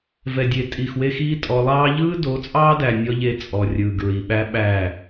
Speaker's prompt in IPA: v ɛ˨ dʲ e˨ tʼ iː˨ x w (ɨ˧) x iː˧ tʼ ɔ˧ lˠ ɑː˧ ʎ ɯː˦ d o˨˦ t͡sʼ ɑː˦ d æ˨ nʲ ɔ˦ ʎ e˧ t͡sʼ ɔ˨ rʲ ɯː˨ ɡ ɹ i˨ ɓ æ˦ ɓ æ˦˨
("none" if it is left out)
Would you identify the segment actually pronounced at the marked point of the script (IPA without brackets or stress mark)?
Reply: e˧